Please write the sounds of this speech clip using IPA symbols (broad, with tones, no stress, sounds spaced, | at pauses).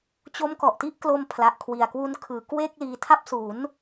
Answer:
t͡ɕ o˦˥ m k ɔ˨˩ ʔ t i˥˩ ʔ k l o˧ m pʰ l a˨˩ ʔ kʰ w i˨˩ a̯ k w u˧ n kʰ ɯː˩˦ k w e˥˩ k̚ l iː˧ tʰ a˥˩ p̚ s u˩˦ n